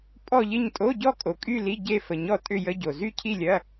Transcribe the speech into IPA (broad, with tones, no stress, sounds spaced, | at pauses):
pʼ ɔ˥˧ ʎ ɪ˥˧ ɲ tʼ o˧˥˧ ɟ ɔ˥˧ kʼ o˨ kʼ y˥˧ l i˧˥˧ ɟ e˥˧ f ə˨ ɲ ɔ˥˧ tʼ ʏ˥˧ j ə˧˥˧ ɟ o˨ z y˥˧ cʰ i˥˧ lʲ ɐ˧˥˧